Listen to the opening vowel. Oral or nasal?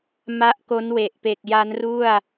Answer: oral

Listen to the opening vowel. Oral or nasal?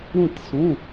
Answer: nasal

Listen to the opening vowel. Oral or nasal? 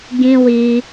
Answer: nasal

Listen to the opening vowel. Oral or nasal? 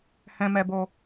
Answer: nasal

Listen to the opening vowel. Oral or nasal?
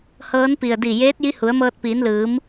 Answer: oral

